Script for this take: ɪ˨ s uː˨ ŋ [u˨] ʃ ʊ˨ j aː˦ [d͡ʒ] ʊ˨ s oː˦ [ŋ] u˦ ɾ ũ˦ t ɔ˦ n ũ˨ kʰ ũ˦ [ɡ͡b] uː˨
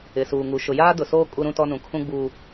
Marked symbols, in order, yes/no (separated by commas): yes, no, no, yes